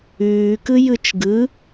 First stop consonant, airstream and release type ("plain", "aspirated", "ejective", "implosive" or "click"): plain